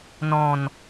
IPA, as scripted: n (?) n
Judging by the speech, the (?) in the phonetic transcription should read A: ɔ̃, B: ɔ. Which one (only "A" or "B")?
A